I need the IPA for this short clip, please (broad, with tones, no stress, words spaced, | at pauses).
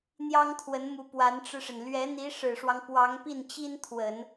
n̪jɑ˥ŋt̪ʰwə˧˥nmu˧˥ pwa˧˥nʈ͡ʂɻ̩˧ʂə˩n lɥɛ˧˥n̪i˧˥ ʂɻ̩˨˩ʂwɑ˦ŋ pwɑ˧˥ŋpi˥˩nt͡ɕi˥nt̪ʰwə˨˩˦n